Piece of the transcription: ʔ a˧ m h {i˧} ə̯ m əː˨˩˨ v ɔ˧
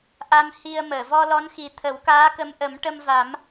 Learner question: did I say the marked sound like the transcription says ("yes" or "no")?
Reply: yes